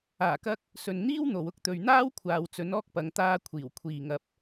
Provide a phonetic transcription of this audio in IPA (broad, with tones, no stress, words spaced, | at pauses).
aː˨˩kɐ˧k̚ | sɵ˨nn̪iː˥wn̪o˨w ʊ˥k̚ t̪ɵ˨ɥn̪aː˥wkʷʰaː˨w t͡sɵ˨˥nɔː˥k̚pɐ˨˧ŋ t̪aː˧ kʷʰiː˨˩wkʷʰiː˨ ŋɐ˨p̚